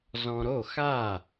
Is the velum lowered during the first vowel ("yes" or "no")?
yes